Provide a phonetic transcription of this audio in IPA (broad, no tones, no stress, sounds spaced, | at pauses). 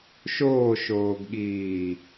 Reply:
ʃ oː ʃ oː ɡ ɠ iː